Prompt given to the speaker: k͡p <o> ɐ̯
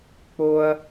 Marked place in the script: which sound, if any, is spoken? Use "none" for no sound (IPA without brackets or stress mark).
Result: o